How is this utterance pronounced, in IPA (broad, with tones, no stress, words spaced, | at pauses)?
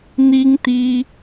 n̪i˥ŋ t̪i˥